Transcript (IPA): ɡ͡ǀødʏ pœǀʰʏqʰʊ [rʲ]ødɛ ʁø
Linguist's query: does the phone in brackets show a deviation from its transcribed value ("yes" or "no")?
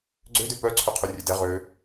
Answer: no